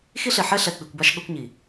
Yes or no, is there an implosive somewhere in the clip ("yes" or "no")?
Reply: yes